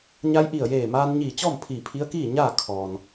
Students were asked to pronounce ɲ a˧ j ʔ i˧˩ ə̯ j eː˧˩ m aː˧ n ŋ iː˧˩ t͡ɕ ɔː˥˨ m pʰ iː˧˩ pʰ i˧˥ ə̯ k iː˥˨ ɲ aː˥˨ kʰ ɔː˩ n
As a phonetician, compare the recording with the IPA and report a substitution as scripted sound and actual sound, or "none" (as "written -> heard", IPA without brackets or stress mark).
ŋ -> ɲ